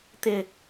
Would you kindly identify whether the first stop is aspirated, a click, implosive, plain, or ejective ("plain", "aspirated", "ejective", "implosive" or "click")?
plain